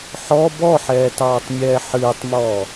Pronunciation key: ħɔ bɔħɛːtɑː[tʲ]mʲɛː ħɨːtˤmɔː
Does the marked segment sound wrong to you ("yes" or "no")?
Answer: yes